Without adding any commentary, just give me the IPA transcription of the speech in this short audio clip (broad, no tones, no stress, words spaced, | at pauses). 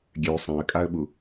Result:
ɡʲø sˤãə̯kʼaə̯ɓu